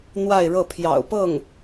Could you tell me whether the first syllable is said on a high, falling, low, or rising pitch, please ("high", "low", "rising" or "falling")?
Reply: falling